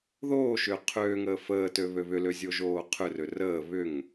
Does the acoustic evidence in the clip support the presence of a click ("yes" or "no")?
no